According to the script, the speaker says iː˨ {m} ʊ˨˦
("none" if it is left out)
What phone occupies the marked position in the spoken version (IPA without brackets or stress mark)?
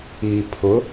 pʰ